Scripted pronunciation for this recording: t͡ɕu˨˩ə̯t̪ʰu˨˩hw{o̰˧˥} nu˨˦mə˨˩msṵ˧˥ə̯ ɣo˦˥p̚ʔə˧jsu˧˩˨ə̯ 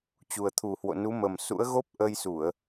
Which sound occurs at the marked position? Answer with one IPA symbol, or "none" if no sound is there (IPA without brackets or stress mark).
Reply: o̰˧˨